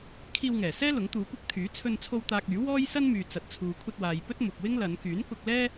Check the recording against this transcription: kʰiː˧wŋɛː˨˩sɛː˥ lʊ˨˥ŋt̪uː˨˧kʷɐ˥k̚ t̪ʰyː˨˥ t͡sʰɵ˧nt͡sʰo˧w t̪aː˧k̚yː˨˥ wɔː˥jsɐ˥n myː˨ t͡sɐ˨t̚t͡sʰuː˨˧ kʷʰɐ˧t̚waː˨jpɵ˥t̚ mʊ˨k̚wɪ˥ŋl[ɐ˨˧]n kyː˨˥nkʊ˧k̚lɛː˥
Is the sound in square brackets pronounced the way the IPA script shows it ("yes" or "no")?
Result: yes